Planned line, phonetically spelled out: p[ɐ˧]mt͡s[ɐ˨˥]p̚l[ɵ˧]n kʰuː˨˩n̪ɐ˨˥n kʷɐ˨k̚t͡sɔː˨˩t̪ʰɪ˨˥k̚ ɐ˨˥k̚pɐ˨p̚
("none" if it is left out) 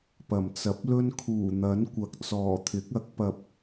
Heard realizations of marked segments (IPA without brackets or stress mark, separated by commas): ɐ˨˩, ɐ˨˥, ɵ˥